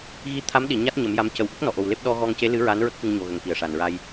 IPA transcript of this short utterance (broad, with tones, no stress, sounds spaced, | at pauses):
ɣ i˧˥ t̪ʰ a˧˥ m ɗ i˨˩˨ ɲ a˦˥ t̚ ɲ ə˨˩˦ m j a˧˥ m c ə˨˩ w ʔ ə˦˥ k̚ n ɔ˨˩ ʔ o˨˩ w l e˦˥ p̚ ɗ ɔ˧ ɣ ɔ˧ ŋ c e˧˥ l ɨ˧˥ ɹ a˧˥ n ɹ ə˦˥ k̚ x ɨ˧ ŋ ɲ o˨˩ ɣ ə˨˩˨ ŋ k i˨˩ ə̯ ʂ a˨˩ n ɹ a˧ j